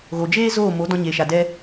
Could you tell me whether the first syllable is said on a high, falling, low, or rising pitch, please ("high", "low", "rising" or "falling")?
low